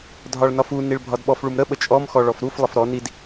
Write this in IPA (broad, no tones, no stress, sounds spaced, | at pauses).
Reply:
dʱ ɒ ɭ n ɒ f u n i ɭ bʱ ɒ d ɓ ɔ f ɭ u m ɾ ə ɓ ə t͡ʃʼ ɔ m x ɔ ɭ ɔ f ɾ u f lˠ ə f ɾ ɔ n i d